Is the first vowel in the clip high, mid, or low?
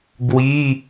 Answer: high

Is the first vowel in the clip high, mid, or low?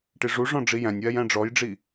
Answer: high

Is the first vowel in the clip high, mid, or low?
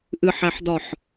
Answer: high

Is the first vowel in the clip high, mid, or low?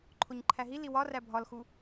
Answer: mid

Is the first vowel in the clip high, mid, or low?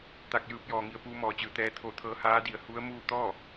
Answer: low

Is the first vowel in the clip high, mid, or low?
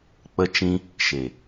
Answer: mid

